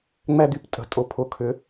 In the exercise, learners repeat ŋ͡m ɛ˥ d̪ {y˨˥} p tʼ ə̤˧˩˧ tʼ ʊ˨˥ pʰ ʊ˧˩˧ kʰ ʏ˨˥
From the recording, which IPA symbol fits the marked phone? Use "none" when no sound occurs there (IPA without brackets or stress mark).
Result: y˨˥